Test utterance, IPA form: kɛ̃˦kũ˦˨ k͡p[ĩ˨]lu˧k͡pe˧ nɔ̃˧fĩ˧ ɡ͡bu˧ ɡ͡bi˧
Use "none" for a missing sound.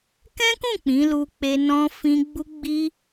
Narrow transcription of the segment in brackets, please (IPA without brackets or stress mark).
ĩ˨˦